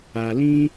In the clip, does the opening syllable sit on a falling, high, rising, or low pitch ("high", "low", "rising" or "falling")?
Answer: low